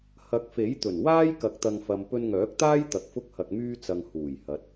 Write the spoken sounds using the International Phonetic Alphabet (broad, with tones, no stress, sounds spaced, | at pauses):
h ɐ˨˥ k̚ f e˨˥ j t̪ ɵ˨˩ n w aː˥ j k ɐ˨˥ k̚ t̪ ɐ˨ ŋ f ɐ˨ m p ɵ˧ n ŋ œː˨˥ k̚ t̪ aː˥ j t̪ ɐ˧ k̚ f ʊ˥ k̚ h ɐ˧ k̚ m yː˥ t͡s ɐ˧ ŋ h uː˨˩ j h ɐ˨˥ t̚